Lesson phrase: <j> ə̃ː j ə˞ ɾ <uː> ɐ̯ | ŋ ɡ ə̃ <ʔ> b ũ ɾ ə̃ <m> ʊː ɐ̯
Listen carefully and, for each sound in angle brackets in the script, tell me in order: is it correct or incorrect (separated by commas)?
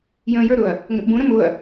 correct, incorrect, correct, correct